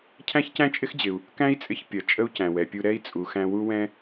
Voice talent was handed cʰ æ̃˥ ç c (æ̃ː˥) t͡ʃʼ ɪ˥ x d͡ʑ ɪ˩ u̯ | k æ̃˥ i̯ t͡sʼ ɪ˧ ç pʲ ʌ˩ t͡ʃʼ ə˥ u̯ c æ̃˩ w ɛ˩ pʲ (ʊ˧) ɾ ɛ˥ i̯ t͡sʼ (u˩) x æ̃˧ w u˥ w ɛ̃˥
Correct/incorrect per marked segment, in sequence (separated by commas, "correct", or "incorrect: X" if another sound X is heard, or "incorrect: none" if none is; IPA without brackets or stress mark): incorrect: æ̃˥, incorrect: u˧, correct